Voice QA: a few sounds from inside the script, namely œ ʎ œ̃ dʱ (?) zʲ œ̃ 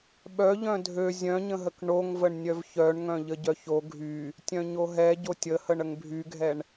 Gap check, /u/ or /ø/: ø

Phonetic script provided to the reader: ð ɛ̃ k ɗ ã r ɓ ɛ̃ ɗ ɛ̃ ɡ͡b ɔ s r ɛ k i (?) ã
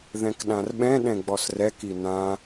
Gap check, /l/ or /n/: n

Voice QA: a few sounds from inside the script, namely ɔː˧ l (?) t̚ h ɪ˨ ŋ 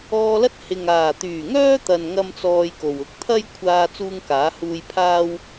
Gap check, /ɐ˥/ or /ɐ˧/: ɐ˥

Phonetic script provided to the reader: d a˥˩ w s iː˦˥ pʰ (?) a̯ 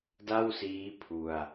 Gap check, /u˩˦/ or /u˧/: u˧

